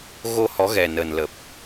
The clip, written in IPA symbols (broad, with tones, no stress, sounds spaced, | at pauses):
ɣ o˧ h ɔ˨˦ ɣ ɛ˨˩ n ə˨˩ n l ə˨˩ p̚